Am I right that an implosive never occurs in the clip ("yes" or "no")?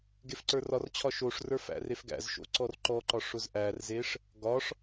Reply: yes